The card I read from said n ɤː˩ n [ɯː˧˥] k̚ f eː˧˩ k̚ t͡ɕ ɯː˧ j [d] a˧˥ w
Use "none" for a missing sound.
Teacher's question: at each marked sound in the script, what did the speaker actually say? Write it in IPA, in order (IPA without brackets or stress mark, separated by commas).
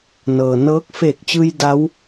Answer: ɤː˧˥, d